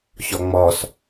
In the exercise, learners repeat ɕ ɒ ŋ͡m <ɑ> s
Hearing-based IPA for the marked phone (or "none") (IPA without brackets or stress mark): ɒ